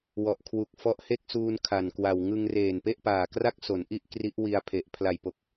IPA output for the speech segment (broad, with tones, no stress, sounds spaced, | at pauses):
w ɔ˨˩ ʔ kʰ w u˨˩ k̚ f ɔ˦˥ ʔ h e˥˩ k̚ s uː˧ n kʰ a˨˩ n k w a˨˩ w ŋ ɯ˧ ŋ r eː˨˩ n p e˥˩ ʔ p aː˨˩ k r a˥˩ k̚ s o˩˦ n ʔ i˥˩ ʔ k r i˦˥ ʔ w i˧ a̯ pʰ e˨˩ ʔ pʰ l a˨˩ j p o˨˩ k̚